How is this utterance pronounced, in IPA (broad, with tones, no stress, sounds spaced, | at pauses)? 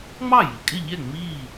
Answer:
ŋ͡m ɑ˥˩ j i˩ kʼ ɪ˥˩ ʎ ɛ˥˩ ŋ͡m iː˥˩